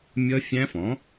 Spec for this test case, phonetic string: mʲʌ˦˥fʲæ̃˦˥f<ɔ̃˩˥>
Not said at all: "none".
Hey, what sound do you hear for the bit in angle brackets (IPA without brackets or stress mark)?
ɔ̃˩˥